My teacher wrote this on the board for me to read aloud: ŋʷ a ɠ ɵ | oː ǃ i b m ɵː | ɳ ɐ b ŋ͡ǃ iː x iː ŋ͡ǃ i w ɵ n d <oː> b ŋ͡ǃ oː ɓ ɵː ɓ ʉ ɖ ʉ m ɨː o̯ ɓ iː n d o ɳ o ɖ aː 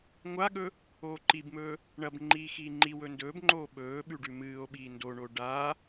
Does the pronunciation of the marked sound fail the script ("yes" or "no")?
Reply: yes